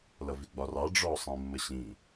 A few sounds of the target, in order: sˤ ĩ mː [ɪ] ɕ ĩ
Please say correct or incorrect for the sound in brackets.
incorrect